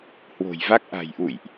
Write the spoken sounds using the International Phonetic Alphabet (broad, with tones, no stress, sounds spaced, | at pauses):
h w o̤˨˩ j v a˦˥ k̚ ʔ a̤˨˩ j ʔ ṵ˧˨ j ʔ